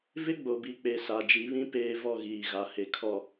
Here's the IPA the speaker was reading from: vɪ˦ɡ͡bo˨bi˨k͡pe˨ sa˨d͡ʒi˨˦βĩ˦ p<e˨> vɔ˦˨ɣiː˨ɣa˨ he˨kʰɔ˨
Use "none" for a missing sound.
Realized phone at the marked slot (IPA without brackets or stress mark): eː˨